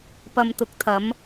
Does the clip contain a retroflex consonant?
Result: no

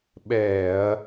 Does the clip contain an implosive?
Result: yes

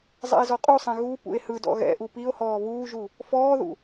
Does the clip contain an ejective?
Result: yes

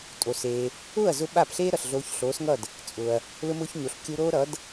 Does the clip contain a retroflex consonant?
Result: no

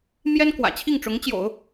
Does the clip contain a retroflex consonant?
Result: yes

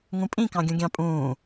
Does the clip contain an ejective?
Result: yes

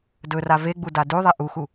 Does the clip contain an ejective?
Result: no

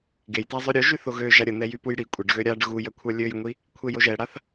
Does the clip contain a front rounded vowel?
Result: yes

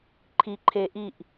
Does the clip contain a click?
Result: yes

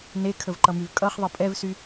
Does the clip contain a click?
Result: yes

